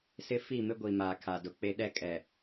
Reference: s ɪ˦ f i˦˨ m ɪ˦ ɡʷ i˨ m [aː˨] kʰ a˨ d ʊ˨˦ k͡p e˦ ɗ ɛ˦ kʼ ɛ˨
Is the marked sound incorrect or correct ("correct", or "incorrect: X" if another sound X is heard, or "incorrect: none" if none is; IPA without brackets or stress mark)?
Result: correct